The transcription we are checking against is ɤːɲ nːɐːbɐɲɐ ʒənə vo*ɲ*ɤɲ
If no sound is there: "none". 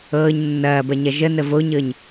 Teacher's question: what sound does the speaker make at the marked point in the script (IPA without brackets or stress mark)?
ɲ